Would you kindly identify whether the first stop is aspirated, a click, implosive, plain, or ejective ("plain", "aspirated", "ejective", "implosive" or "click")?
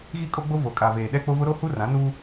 ejective